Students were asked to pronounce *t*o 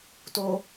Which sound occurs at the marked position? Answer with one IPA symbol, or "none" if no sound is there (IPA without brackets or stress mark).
t